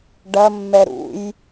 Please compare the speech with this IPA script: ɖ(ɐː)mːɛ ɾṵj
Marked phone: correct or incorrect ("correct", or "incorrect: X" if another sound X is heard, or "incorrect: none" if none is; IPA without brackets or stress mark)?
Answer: incorrect: ɐ